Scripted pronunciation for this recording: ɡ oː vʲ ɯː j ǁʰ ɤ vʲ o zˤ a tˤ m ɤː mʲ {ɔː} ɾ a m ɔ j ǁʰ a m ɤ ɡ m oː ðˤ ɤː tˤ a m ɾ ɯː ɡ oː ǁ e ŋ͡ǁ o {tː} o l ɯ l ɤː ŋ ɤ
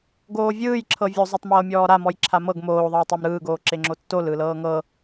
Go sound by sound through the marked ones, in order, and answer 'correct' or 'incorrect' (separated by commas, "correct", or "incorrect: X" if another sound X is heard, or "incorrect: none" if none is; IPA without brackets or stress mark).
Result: correct, correct